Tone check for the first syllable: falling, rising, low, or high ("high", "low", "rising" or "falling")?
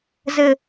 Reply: falling